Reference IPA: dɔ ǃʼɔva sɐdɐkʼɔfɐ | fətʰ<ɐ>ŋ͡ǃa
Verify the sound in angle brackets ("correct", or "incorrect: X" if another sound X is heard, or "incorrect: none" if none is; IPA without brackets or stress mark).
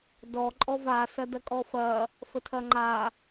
correct